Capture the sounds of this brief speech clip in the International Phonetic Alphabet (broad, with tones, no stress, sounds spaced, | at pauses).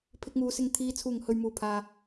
pʰ ɪ˧ k̚ ŋ uː˨˧ s ɪ˧ ŋ t̪ʰ iː˨˧ t͡sʰ uː˨˩ ŋ h ɵ˨ ɥ m uː˨˩ pʰ aː˨